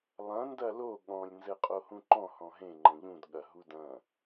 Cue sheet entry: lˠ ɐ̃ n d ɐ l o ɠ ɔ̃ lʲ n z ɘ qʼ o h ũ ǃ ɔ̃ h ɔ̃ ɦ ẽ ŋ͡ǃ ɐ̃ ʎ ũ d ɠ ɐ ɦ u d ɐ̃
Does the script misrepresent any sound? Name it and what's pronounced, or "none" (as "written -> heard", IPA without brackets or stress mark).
none